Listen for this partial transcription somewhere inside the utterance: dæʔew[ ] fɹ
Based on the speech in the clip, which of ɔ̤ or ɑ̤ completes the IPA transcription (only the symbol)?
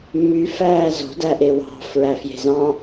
ɑ̤